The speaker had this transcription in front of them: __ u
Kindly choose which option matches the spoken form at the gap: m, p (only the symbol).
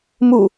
m